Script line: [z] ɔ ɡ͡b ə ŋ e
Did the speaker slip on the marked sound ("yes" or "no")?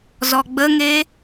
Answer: no